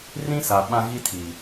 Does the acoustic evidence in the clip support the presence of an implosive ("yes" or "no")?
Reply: yes